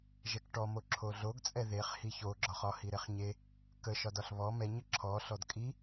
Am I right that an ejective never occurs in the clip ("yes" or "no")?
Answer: no